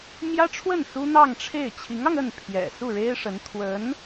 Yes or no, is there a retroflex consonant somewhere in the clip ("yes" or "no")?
yes